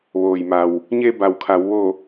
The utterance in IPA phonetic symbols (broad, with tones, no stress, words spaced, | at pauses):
ʋoː˩jma˩w | ɲe˧ba˩wkʰa˩˧w ʋo˧˩